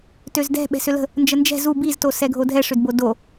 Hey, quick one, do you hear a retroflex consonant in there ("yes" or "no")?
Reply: yes